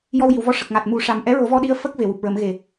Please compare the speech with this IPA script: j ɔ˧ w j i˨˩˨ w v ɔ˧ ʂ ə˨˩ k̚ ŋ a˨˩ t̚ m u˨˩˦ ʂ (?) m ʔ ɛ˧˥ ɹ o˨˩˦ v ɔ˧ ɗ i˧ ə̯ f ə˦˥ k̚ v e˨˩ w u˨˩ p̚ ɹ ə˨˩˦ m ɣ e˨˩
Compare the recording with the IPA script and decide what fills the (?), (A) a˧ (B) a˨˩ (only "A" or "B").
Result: B